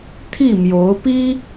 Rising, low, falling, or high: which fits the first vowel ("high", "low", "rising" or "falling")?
falling